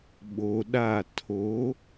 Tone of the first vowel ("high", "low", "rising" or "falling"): low